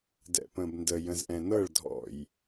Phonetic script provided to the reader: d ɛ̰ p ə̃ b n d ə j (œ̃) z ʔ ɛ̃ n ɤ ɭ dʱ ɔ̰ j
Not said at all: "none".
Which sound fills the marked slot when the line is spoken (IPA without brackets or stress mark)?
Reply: ə̃